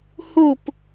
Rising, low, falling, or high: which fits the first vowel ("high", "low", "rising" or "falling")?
falling